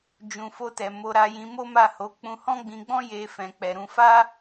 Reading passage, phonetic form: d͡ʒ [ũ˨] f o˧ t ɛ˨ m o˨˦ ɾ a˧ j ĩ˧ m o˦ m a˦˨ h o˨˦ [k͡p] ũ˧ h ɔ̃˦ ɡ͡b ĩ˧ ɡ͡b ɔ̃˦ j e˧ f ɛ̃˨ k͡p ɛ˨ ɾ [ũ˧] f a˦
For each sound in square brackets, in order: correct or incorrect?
correct, correct, correct

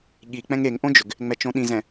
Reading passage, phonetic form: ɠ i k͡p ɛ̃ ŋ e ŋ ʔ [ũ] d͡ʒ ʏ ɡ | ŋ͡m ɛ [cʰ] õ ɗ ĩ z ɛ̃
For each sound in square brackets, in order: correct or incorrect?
incorrect: õ, incorrect: t͡ʃ

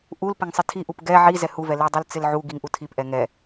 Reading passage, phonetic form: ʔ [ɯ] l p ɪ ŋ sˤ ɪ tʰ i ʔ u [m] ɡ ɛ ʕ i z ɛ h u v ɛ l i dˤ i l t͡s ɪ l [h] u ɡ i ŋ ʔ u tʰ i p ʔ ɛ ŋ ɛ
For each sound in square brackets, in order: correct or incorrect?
incorrect: u, incorrect: p, incorrect: ʕ

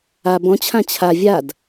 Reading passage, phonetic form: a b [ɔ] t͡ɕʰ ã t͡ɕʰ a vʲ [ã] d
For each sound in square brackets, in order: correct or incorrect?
incorrect: ɔ̃, incorrect: a

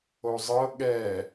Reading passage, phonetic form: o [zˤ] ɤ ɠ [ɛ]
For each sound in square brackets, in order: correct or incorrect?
correct, correct

